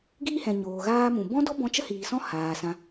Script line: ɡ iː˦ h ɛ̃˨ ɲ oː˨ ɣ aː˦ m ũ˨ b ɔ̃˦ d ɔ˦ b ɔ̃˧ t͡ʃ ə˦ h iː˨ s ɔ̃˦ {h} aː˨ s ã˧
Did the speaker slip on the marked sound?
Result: no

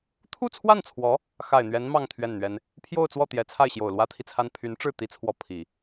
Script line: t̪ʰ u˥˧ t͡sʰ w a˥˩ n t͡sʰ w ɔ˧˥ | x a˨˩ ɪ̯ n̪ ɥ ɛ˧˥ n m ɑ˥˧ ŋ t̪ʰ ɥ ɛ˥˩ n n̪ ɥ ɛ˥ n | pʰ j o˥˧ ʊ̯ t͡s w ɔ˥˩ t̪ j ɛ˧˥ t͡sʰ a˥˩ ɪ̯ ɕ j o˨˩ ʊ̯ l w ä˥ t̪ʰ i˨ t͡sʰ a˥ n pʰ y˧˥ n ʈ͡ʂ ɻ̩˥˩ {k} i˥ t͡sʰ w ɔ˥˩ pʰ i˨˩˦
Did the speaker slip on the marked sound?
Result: yes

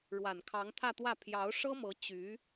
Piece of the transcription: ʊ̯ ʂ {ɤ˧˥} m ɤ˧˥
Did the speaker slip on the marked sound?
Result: yes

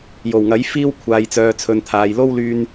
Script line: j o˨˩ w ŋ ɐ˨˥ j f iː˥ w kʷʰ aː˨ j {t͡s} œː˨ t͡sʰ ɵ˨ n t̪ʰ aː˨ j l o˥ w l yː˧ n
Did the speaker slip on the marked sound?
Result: no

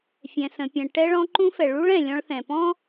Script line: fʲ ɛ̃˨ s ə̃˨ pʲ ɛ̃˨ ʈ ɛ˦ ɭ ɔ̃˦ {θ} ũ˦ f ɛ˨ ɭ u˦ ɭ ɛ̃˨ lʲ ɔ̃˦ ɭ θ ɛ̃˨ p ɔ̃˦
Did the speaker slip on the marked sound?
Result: yes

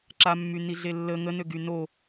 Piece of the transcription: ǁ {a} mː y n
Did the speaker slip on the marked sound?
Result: no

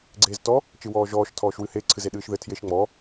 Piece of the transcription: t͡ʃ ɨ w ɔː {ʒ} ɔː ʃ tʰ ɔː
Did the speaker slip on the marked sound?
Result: no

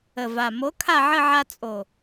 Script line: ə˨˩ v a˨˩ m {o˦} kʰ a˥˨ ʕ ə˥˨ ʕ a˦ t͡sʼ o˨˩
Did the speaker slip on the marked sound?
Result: yes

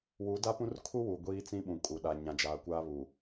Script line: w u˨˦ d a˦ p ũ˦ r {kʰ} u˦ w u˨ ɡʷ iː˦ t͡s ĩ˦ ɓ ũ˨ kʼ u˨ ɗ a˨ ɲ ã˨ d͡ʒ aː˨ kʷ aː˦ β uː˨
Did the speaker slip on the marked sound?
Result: no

